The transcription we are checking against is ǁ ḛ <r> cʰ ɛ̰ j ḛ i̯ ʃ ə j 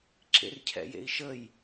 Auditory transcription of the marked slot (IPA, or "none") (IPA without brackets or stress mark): r